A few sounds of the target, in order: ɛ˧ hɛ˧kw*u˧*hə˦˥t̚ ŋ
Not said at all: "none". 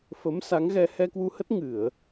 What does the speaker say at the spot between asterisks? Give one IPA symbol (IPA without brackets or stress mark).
u˧